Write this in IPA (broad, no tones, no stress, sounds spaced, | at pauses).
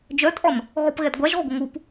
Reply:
d͡ʒ œ tʼ ɔ n | ɣ ɔ p ɣ ɛ d ɡʷ a ʒ ʁʷ ə ɡʷ ə ŋ u p